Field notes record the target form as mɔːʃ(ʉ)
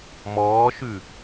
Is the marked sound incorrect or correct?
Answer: correct